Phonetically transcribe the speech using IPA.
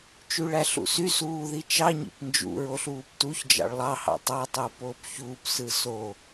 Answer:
t͡ʃ y ɭ æ ɬ ṵ s y s uː ð i t͡ʃ ɑ ɲ ḭ p n d͡ʒ ṵ ɹ o ɬ uː p t u ç d͡ʒ ɑ̰ ɭ lˠ ɑ h ɑ̰ tˤ ɑ tˤ oː p oː p ç uː p s ɯ s o

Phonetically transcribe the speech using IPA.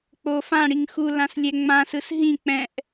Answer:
k͡p o f ã ɽ i ŋ x u l ã s lʲ ɛ ŋ͡m ã s ɯ s ɦ ĩ k͡p ɛ̃ ʔ

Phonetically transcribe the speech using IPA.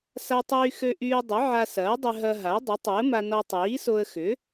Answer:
s a˧ tˤ yː˧ x ø˧ ʔ yː˧ dˤ ʏ˩˥ ʕ a˧ s ɐː˩˥ dˤ ʏ˧ ɦ ɐ˧ ɦ a˩˥ dˤ ʏ˩˥ tˤ o˩˥ ə̯ m a˧ n ɔ˧ tˤ iː˩˥ s o˧ ə̯ x ʏ˩˥

